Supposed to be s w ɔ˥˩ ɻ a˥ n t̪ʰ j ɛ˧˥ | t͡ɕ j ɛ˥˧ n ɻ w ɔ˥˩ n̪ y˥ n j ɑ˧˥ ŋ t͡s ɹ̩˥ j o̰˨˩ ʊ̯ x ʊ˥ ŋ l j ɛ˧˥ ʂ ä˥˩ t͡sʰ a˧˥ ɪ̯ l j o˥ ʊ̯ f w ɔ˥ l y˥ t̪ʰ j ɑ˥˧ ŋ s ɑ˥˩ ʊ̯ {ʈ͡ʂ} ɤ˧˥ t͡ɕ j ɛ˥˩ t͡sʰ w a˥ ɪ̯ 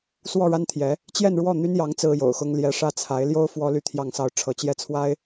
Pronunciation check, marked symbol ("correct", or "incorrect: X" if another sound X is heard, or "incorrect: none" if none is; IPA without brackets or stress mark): incorrect: ʈ͡ʂʰ